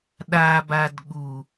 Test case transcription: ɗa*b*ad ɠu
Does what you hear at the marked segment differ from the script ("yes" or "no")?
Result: no